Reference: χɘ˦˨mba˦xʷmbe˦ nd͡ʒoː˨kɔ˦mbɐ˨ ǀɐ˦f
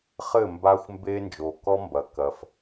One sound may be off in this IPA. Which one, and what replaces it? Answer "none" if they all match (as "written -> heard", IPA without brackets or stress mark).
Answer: ǀ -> k